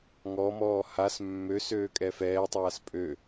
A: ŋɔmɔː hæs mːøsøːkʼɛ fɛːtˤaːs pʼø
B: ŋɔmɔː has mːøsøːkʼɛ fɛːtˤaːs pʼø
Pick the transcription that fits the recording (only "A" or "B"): B